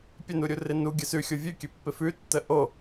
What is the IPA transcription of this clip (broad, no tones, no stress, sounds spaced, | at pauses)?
pʲ ə n u ɾʲ u r ɪ n u ɡʲ ə s ʉ xʲ o vʲ ʉ kʲ ø pː ɪ f ʉ tː ə ʔ o